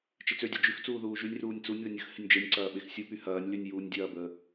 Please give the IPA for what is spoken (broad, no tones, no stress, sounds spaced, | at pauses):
t͡ʃ ɪ t͡s ø dʲ ɐ d͡ʒ y x t͡s uː ð uː ʒ y nʲ r uː nʲ t͡s u nʲ ð ə nʲ ə x h ɪ nʲ d͡ʒ e nʲ ǀ ɐː ɓ e x sʲ u p y h ɐː nʲ l y nʲ j uː nʲ dʲ ɐː b əː